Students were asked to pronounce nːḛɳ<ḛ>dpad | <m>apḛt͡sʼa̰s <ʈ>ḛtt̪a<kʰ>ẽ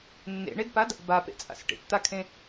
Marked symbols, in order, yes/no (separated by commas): no, no, yes, yes